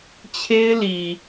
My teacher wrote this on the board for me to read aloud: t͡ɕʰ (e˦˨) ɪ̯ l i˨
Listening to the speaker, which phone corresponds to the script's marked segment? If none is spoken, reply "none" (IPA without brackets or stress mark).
e˦